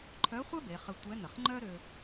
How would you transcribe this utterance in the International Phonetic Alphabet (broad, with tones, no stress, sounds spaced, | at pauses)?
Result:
ǃʰ œ˧˥ χʷ œ˥ b e˩˧ χ ə˧ tʷ ɛ˧˥ n̪ ə˩ χ ŋ͡ǃ œ˥ ɾ ø˧